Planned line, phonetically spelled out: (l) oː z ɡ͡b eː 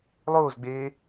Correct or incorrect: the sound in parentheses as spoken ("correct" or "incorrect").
incorrect